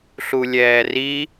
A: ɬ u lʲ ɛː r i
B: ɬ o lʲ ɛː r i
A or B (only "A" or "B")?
A